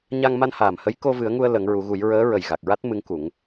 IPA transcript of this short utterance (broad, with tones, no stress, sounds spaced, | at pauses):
ɲ a˧ ŋ m a˧ n h aː˨˩ m h ə˧˥ j k o˧ v ɨ˨˩˦ ə̯ ŋ u˧ ə̯ l ə˨˩˦ ŋ ɹ u˨˩˦ ɣ u˨˩˦ j ɹ əː˧˥ ɹ ə˨˩ j ɣ a˨˩ k̚ ɹ a˦˥ t̚ m ɨ˧˥ ŋ k u˨˩˦ ŋ